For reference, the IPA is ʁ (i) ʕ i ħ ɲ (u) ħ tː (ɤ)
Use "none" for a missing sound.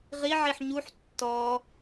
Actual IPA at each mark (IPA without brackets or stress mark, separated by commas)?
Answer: i, u, ɔ